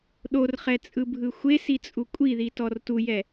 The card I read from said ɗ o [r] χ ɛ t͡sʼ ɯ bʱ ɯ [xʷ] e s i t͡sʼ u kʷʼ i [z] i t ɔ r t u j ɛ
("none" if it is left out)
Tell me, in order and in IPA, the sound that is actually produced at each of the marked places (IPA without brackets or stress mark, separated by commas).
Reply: r, xʷ, ð